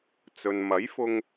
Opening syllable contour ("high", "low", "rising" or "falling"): low